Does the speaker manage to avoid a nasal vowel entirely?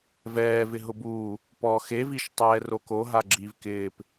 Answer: yes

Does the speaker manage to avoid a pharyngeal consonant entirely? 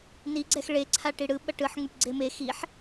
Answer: no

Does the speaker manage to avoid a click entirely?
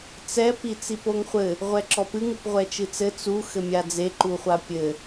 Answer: no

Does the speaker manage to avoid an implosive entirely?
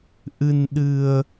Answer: no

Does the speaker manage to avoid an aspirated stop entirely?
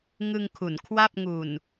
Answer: no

